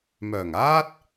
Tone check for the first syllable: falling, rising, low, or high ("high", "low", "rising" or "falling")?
low